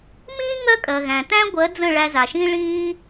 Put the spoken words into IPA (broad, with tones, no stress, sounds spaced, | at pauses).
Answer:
m ĩː˦ ŋ ɜ˦ kʼ ɜ˨ ɣ æ̃˨ t æ̃˦ ɡʷ ɜ˨˦ d͡z ə̃˦˨ ɭ æ˧ z a˨ ʃ ĩ˦ ɭ ĩː˦